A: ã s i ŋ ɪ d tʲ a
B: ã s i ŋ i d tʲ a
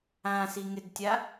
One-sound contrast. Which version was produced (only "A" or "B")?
A